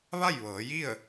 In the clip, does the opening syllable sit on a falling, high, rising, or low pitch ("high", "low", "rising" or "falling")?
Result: falling